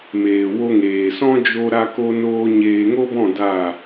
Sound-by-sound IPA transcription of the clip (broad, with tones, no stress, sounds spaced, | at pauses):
m eː˨ w o˧ ŋ eː˨ s ɔ̃˦ d͡ʒ o˦ ɾ a˦ k o˦ n oː˦ ɲ eː˧ ŋ o˦ b ɔ̃˦˨ d a˦˨